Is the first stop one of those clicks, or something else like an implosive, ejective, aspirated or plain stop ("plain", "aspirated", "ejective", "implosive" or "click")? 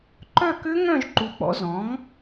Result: click